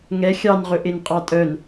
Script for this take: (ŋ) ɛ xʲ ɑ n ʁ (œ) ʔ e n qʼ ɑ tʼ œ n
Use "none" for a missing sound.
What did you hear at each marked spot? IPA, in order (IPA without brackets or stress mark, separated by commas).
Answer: ŋ, ɵ